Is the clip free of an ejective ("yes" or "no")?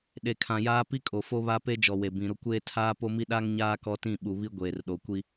no